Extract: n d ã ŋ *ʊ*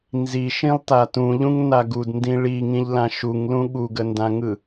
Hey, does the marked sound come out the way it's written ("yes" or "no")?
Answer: no